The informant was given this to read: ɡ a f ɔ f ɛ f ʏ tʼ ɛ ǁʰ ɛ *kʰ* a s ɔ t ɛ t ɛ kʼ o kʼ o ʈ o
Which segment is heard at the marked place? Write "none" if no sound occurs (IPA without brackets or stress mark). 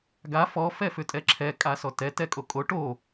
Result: kʼ